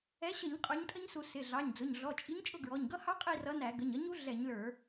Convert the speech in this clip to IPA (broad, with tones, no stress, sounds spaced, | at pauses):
ɛ˨˥ ɕ ə˧˩˧ ɲ qʼ ə˞˨˥ ɲ tʼ ə˦˥ ɲ s u˧˩˧ s ɪ˩˧˩ ɮ ɑ˩˧˩ ɲ d͡z ʊ˩˧˩ ɲ ɮ ɔ˩˧˩ t͡ʃʼ i˨˥ ɲ t͡ʃʼ ʊ˦˨ ɡ ɹ ɔ˩˧˩ ɲ ɡ ʌ˦˥ h ɑ˦˥ qʼ i˦˨ r ʌ˨˥ n æ˧˩˧ ɡ ə˩˧˩ ɲ ʌ˨˥ ɲ u˨˥ ɮ ɛ˧˩˧ ɲ l ə˞˧˩˧